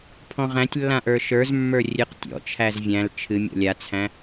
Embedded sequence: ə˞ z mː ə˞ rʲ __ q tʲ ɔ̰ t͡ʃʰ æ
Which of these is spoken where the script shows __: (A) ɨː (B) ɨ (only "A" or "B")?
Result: B